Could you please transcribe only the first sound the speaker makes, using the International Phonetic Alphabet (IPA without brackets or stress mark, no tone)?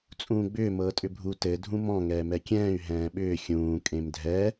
t͡sʼ